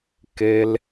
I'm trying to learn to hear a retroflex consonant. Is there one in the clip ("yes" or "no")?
no